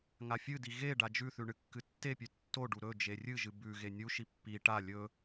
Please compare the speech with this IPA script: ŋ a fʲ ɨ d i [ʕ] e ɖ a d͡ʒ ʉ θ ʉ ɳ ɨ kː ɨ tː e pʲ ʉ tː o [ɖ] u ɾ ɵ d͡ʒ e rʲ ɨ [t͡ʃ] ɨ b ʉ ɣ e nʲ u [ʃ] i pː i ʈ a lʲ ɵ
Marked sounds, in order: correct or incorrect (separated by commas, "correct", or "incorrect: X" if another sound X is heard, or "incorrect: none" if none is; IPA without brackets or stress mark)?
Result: incorrect: ɣ, correct, incorrect: ʒ, correct